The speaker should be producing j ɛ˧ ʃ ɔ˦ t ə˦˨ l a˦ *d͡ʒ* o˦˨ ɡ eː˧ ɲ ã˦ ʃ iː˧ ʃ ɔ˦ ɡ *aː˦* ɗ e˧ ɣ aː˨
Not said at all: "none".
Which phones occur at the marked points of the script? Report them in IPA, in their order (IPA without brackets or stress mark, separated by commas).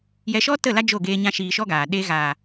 d͡ʒ, aː˨